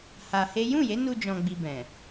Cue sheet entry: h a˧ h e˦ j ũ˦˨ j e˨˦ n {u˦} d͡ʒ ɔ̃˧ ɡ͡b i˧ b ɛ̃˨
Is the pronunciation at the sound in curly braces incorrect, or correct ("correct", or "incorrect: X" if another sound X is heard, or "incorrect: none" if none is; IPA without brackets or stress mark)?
incorrect: u˧